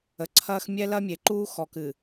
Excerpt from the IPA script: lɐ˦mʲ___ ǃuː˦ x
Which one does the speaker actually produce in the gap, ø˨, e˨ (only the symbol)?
e˨